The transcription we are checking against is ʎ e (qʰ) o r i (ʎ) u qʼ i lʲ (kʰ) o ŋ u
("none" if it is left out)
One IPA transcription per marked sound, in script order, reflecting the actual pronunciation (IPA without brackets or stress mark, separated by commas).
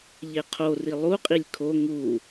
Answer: qʰ, lˠ, kʰ